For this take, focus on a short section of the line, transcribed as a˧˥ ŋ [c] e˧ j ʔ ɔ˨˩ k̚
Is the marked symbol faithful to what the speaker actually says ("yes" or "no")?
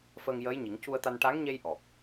no